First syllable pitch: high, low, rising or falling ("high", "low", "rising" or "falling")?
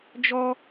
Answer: high